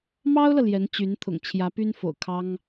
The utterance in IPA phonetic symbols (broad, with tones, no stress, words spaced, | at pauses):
mɑ˥ʊ̯lɤ˨ ljɛ˧˥nt͡ɕy˧˥n t̪ʰʊ̰˨˩ŋt͡ɕʰjä˧˥py˥nfo̰˨˩ʊ̯ kʰɑ˥ŋ